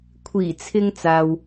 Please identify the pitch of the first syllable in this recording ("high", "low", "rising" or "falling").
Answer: low